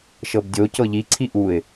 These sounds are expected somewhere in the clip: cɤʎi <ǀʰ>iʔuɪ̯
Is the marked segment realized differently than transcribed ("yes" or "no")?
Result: no